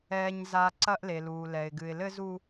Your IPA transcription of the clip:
ɛː˨ ɲ z a˨ ǀ ɐ˦ ʔ l e˨ l uː˨ l ɛ˨ ɪ̯ ɡ ɨ˨ ɪ̯ l ɘ˦ z u˦

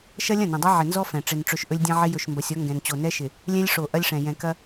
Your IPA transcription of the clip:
ʃ ɐ˦ lʲ ɐ̃˦˨ n ɐ̃˨ dˤ ɛ˦ ʕ ɪ˨ n z ɔ˦ f ɛ̃˨ ʈ͡ʂ ɪ˨ n ʈ͡ʂ ɵ˨ ʃ ʔ ɵ˦ lʲ dʲ ɐ̃˦ ʕ ɪ˦ j ɵ˨ ʃ m b ɐ˨ sʲ ɔ˦ ŋ ɡ ɛ̃˨ n t͡ɕ o˨ n ɛ˦ ʃ ɪ˨ | lʲ ɛ̃˦ lʲ ʂ o˨ ʔ ɐ˦ lʲ ʂ ɛ̃˨ j ɛ̃˨ k ɐ˦

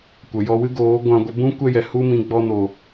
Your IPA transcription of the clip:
kʷ ə˨ j ɔ˧ w ɨ˦ ɡ oː˨˦ ɡʷ ã˧ ɡʷ ə˧ b ũ˦ kʷ ɛ˦ j ɛ˨ h u˦ m ĩ˧ ɡ͡b ɔ˧ n o˨

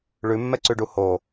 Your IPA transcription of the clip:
ɭ ʉ mː ɛ ǀ ʉ ɖ u h o

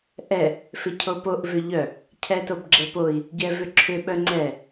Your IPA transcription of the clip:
ʔ ɛ | f ɪ cʰ o p o ʔ v ʏ ʎ œ | cʰ ɛ t o b ɡ͡ǁ ɛ p o i̯ | ɟ ɛ v ʏ ǁʰ ʏ ɓ œ ŋ͡ǀ ɛ

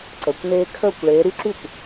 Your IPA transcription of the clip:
ǀ əː˨˦ kʷ n eː˦˥ kʰ əː˥˩ kʷ ɭ eː˨˦ ɾ y˦˥ ǁ y˥˩ kʷ

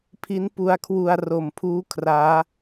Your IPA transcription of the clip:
pʰ i˦˥ n p u˧ a̯ kʰ w u˧ a̯ r o˨˩ m pʰ uː˦˥ kʰ r aː˦˥

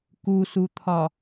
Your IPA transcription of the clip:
k u s u t̪ʰ ɒ

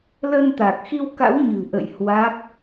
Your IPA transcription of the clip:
l ə˧ n t̪ a˨˩ k̚ x i˧ w k a̰˧˥ w ɲ ɨ̤˨˩ ʔ ə̰˧˨ j h w a˦˥ k̚

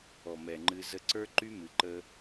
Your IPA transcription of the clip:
ɔ˨ m ɛ˨ ŋ͡ǃ ɨ˧ z ə˧ ǀ ə˞˦ ǃ y˦ m ɨ˨ ǃ ə˧

